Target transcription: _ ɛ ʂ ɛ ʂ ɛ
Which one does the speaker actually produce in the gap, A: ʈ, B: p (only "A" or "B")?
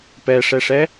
B